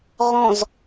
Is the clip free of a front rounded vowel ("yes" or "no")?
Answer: yes